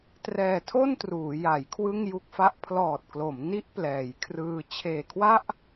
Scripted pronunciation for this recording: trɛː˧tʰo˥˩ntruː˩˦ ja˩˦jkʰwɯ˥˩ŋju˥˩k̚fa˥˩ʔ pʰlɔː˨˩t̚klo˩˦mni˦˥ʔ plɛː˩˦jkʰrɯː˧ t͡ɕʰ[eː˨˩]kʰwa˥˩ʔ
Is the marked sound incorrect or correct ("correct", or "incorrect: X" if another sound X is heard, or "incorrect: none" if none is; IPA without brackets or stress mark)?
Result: correct